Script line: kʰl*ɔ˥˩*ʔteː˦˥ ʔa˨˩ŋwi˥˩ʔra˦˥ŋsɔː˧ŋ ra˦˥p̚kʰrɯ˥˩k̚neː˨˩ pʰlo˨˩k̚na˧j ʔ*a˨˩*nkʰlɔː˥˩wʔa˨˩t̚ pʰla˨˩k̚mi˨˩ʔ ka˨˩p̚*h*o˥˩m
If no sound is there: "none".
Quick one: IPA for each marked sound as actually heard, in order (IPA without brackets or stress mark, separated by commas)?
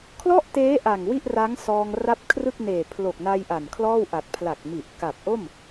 ɔ˥˩, a˨˩, ʔ